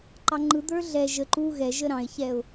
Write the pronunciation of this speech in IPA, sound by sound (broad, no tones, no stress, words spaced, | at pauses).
ǃɑŋ͡ǃɯ d̪ə˞ɮɛ ʒə ǃu ɣɛʒə ɾɑ̃ɪ̯çɛʊ̯